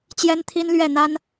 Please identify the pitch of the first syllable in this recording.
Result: high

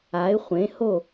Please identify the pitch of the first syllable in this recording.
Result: rising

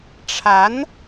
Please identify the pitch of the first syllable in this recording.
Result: rising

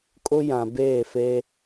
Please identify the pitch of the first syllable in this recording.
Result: high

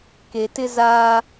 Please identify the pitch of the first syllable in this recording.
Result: low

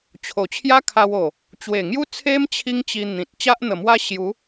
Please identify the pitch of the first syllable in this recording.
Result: low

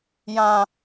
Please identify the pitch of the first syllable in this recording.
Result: high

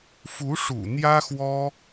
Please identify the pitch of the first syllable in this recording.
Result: rising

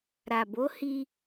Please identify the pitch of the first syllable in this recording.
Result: low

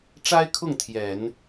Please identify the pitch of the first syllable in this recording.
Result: high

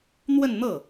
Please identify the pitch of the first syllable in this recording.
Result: falling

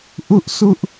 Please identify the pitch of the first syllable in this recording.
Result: high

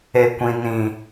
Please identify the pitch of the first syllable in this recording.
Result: low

